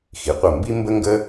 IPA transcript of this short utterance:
x i˩˧ qʷ ɐ˧˩ m b i˥ m b ə˥ ŋ ɡ ə˥

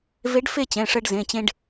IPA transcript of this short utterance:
v e˧˥ ɖ f e˥˧ t͡ɕ ɛ̃˩˧˩ ʂ ɜ˧ ɖ z ẽ˩˧˩ t͡ɕ ẽ˧ ɖ

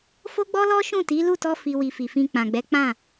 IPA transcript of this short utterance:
f o˦ ɡ͡b ɔ˦ l ɔ˦ ʃ ũ˦˨ t i˨˦ l u˦˨ t ɔ˧ f i˨ w i˨ f i˨ f ĩ˧ k͡p ã˨ ɡ͡b ɛ˨˦ k͡p ã˦˨

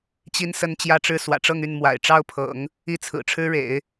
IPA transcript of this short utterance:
t͡ɕ i˥ n s ə˥˧ n t͡ɕ j ä˥˧ ʈ͡ʂ ɻ̩˥˩ s w ä̰˨˩ ʈ͡ʂ ɤ˥˧ ŋ y˥˩ n m w a̰˨˩ ɪ̯ ʈ͡ʂ ɑ˥ ʊ̯ pʰ ɤ̰˨˩˦ ŋ | i˥˩ t͡sʰ ɹ̩˨˩ ʈ͡ʂʰ ɻ̩˥ ɻ ḛ˨˩˦ ɪ̯

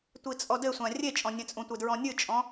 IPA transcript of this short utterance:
tʷ i t͡sʼ ɔ d ɘ sʷ ã rʲ e t͡ʃʼ ɔ̃ nʲ ɛ̃ t͡sʼ ũ tʷ e d ɹ ɔ̃ nʲ ɨ t͡ʃʼ ɔ̃

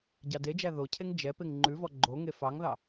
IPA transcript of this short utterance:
ɟ ɑ d e d͡ʒ æ ð o cʰ e ŋ d͡ʒ ɛ p e ŋ ŋ͡ǃ ʉ v ɔ ɡ͡ǃ o ŋ e f ɑ ŋ ð ɑ

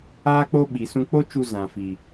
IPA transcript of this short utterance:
aː˦ k͡p o˦ ɓ i˨ s ũ˧ k͡p o˦ t͡ʃ u˧ z ã˨ f i˨

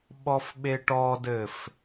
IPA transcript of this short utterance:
ɓ ɔ f ɓ e ʈ ɔ d ɘ f

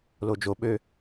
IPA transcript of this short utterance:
l o d͡ʒ o ɓ ø

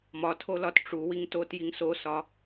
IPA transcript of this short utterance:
m ɒ tʰ o l ɒ t ʈ͡ʂ u w i ŋ t o t j i ŋ s o s ɒ

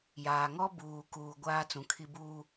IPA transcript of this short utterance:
j aː˨ ŋ ɔ˦ b uː˨ k uː˨ ɡʷ aː˦ t͡s ũ˨ kʰ i˦ b uː˦

